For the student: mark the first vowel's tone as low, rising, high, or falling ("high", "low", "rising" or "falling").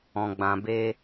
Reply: low